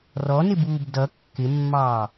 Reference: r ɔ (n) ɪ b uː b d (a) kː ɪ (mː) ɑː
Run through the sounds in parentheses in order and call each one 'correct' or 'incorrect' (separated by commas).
correct, incorrect, correct